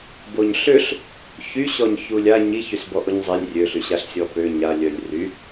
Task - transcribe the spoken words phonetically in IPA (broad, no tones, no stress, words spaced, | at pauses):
boɲɬøɬ | çyɕɔɲ çulʲa ɲiç ysbɔʔoɲzˤelʲ rʲøɬyɕaɬ sʲɔpø ɲalʲœlʲ ry